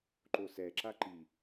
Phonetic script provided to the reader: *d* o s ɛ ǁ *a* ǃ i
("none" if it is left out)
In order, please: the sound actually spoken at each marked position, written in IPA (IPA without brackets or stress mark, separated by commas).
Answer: ǃ, a